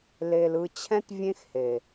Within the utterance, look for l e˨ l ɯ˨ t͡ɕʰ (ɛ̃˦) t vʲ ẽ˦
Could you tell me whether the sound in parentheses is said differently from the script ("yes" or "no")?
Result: no